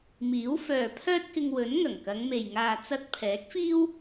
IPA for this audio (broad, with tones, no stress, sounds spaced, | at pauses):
m iː˨˥ w f œː˨ pʰ œː˥ t̚ k ɪ˧ ŋ w ɵ˨˥ n ŋ ɐ˨˩ ŋ k ɐ˨˧ ŋ m e˨ j ŋ aː˨ t͡s ɐ˧ t̚ pʰ ɛː˨˥ k̚ f iː˥ w